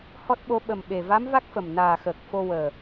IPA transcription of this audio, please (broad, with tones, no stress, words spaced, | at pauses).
hɔ˦˥t̚ɓo˧˥ ɓə˨˩mɓe˨˩ va˧˥mva˦˥k̚fə˨˩m naː˨˩xəː˨˩k̚ fo˧ wəː˨˩